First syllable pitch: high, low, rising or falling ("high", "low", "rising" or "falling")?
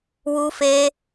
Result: high